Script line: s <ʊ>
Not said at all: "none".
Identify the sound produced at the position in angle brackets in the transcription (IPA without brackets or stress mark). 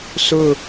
ʊ